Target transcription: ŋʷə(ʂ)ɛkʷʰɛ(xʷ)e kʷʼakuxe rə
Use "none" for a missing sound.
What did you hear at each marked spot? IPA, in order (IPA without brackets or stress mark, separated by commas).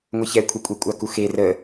ç, kʷʼ